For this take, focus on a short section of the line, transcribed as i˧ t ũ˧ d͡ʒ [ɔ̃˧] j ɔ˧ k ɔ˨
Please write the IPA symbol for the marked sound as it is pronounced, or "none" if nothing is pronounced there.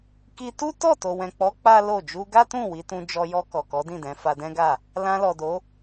ɔ˧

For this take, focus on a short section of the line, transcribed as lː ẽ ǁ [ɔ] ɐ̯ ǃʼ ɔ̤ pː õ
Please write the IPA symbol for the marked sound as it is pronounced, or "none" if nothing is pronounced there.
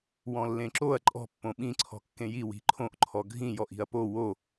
o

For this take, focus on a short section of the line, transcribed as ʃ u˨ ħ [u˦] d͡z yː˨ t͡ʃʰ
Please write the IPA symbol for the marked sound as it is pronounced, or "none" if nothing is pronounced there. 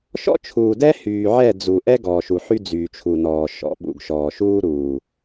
y˦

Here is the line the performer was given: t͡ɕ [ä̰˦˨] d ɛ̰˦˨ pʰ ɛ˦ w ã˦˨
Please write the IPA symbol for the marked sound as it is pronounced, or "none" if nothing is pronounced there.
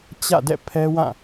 ä̰˦˨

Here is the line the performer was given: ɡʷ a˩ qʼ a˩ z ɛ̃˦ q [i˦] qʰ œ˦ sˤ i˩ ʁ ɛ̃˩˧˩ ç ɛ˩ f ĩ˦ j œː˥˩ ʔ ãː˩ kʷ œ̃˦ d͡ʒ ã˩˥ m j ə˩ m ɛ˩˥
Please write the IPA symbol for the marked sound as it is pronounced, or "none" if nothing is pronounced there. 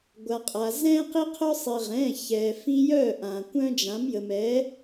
i˦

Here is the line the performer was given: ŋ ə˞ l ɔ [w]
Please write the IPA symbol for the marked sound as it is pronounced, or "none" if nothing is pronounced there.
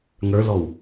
w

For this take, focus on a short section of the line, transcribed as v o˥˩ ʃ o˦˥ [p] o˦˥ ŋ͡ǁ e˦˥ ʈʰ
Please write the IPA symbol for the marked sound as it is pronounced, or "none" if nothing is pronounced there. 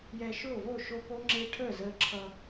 p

